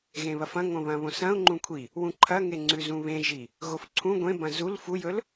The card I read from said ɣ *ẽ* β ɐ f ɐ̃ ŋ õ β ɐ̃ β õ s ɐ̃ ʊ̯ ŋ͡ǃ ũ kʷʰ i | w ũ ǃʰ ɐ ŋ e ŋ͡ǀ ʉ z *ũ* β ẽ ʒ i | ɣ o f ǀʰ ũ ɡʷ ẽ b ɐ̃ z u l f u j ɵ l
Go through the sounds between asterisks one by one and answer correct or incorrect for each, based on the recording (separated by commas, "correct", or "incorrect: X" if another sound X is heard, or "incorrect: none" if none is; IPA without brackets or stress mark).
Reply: correct, correct